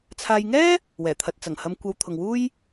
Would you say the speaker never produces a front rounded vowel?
yes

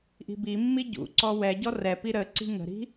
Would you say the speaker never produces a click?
no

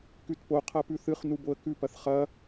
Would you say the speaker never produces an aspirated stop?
no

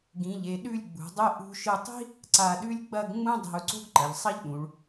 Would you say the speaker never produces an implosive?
no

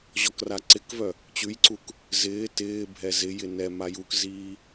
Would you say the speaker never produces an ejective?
yes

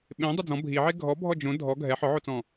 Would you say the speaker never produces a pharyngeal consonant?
no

